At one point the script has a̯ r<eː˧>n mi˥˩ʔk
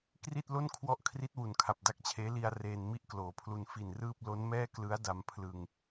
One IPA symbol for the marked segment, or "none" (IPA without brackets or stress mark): eː˧